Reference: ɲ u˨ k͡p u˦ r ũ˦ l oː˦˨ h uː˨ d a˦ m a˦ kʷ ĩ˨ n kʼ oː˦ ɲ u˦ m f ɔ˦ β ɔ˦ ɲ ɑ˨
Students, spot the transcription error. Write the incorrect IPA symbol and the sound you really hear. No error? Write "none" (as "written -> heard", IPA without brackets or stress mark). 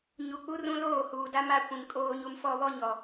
ɑ˨ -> ɔ˨